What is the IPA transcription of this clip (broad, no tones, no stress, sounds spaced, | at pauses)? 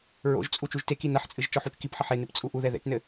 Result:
ɹ o̰ ʒ t͡sʼ u t͡ʃ u ʒ t e k i n ɐ ħ t͡sʼ ɨ ʒ t͡ʃ ɔ ħ u t͡ʃ k i p ħ ɐ ħ e n ɨ p t͡sʼ u ʔ u ð ɛ ð ɛ̰ t͡ʃ n ɘ